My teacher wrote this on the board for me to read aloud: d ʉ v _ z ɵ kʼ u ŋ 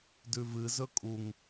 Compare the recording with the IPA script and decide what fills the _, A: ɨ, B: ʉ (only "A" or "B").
A